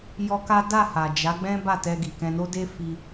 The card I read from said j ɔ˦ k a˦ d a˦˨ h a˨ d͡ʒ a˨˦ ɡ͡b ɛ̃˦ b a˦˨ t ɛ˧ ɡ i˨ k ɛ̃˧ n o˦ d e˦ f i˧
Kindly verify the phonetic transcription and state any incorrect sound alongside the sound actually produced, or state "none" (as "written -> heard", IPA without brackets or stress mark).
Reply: none